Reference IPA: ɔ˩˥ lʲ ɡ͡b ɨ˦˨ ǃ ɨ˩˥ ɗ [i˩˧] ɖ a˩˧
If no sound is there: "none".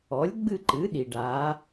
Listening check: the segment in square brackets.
i˩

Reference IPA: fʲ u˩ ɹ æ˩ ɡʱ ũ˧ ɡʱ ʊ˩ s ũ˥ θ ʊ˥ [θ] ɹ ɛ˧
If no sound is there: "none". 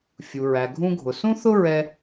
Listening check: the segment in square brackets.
none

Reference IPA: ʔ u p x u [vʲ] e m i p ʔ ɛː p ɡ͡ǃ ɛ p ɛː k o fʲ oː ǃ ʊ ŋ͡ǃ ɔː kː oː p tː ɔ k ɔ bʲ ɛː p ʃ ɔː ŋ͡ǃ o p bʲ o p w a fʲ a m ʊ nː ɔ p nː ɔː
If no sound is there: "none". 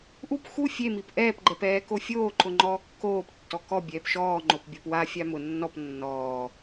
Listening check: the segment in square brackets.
fʲ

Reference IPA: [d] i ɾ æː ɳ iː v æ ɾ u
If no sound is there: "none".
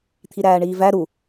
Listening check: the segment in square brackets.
t̪ʰ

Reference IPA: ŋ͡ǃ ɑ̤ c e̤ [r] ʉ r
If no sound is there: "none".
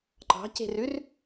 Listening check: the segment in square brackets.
r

